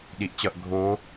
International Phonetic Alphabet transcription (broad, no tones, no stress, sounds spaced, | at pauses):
ɗ i ʔ t͡ɕ ʌ ʔ ɡʱ o